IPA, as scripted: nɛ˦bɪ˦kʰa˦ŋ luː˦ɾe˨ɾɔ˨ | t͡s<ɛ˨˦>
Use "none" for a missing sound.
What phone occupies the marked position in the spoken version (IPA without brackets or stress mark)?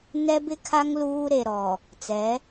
ɛ˨˦